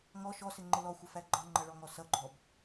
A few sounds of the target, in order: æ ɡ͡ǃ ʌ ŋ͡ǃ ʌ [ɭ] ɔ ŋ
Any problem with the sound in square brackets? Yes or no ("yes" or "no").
no